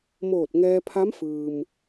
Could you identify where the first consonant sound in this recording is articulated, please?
labial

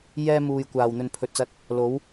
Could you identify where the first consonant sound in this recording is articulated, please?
palatal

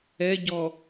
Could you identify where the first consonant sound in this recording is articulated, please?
palatal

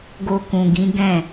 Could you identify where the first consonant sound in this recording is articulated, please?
velar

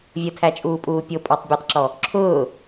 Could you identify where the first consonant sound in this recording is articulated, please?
labial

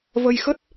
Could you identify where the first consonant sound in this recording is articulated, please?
labial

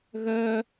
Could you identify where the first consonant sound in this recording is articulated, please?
velar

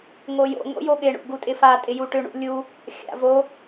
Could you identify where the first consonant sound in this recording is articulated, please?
velar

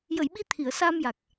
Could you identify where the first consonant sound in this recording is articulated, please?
palatal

